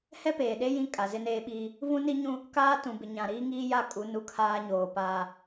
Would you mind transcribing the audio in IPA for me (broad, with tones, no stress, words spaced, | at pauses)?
hɛ˦peː˨ɗe˦ jĩ˦kʼa˨ zɪ˦neː˦ ɓiː˦ | vũ˦ni˦ɲũ˦ | kaː˦ tũ˨bɪ˨ ɲã˨ɾiː˦ŋiː˦ja˦˨ kʼu˨˦ nu˦kʰaː˦ ɲoː˨paː˦